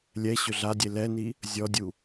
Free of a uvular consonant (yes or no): yes